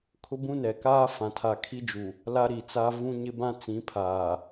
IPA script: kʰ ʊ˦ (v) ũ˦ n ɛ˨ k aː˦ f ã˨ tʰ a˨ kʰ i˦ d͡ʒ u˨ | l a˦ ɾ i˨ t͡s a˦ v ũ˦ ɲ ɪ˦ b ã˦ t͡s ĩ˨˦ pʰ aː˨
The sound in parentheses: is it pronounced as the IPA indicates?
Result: no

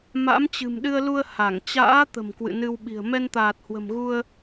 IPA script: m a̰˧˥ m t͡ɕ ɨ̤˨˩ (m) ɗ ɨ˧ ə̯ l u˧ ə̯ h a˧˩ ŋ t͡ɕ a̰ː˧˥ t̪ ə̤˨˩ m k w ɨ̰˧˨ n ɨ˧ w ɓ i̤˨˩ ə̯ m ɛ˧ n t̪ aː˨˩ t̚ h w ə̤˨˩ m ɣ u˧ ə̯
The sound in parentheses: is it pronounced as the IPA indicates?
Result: yes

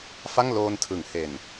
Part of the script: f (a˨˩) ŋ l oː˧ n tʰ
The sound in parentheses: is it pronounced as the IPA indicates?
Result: no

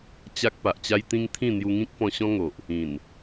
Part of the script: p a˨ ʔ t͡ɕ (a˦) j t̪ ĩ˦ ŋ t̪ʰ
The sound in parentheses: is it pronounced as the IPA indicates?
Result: yes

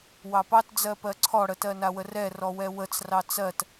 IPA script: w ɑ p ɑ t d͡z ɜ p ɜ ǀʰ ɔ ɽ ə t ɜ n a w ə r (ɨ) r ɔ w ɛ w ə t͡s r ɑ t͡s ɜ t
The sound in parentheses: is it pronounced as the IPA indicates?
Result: no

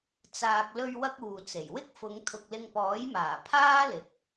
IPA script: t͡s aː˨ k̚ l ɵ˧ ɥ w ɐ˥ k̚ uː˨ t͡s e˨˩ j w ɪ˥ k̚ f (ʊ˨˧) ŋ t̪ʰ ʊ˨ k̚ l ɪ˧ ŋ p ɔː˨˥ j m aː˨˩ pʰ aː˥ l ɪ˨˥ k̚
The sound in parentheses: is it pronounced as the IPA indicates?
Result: yes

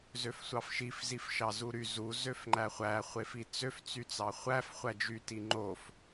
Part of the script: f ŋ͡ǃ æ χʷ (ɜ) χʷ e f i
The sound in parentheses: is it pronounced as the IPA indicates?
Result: no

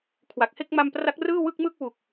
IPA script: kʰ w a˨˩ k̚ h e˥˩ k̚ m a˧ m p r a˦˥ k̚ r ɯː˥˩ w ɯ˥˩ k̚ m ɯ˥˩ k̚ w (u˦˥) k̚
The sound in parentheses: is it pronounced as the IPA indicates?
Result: no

